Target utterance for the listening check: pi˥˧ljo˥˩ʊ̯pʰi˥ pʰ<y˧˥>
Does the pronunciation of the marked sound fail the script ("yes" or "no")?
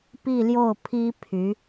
no